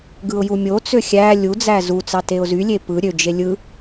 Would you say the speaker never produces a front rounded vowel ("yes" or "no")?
no